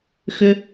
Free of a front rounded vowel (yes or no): no